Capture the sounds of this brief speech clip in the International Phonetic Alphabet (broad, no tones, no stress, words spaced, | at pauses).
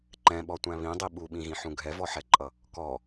ǃɛ̃ɓɔtʷæ̃ βĩdˤi ɓuɓĩɣĩħũ ɡʱɛvɔħɛǃʼʌ | kɔ